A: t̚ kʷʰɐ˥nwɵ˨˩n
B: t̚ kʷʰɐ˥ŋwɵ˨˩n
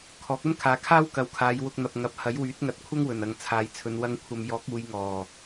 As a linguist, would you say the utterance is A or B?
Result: B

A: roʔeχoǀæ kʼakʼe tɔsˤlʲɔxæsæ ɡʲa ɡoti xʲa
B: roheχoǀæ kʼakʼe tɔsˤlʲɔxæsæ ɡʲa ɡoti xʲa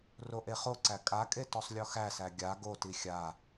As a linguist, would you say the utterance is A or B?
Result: A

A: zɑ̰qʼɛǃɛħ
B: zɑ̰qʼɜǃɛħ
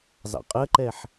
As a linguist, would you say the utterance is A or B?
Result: B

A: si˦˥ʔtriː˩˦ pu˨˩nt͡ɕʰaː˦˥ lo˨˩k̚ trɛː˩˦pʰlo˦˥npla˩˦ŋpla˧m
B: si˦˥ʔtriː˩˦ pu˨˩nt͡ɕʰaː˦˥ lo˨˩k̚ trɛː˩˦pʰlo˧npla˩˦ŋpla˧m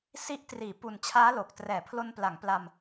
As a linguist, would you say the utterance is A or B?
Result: B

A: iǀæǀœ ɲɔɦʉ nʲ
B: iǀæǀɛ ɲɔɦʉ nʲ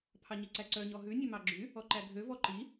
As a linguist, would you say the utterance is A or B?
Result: A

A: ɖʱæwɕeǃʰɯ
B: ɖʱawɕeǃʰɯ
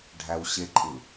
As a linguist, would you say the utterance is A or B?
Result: A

